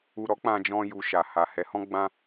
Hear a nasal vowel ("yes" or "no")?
yes